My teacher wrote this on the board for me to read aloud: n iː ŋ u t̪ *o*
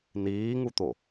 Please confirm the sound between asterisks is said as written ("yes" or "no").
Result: yes